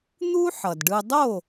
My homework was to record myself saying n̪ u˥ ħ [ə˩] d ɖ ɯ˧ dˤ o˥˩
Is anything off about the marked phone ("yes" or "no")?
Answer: yes